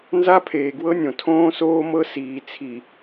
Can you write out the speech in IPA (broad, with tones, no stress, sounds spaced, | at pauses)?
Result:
n z a˦ pʰ eː˨ ɡ w ɤ˦ nʲ õ˨ tʰ õː˦ s oː˦ m ɤ˦ s iː˨ t͡sʰ i˨